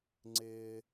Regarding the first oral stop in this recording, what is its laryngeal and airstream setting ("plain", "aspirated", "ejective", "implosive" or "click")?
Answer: click